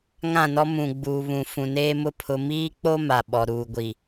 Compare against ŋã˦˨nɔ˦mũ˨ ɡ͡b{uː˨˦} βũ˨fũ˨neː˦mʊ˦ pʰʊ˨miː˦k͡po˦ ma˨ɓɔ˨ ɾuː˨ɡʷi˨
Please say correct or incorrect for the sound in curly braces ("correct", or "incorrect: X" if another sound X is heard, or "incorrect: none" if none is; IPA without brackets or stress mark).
incorrect: uː˨